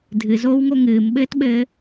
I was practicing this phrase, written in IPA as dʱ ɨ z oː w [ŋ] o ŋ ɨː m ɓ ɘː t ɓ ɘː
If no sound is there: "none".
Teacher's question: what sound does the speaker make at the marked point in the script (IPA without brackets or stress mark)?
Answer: ŋ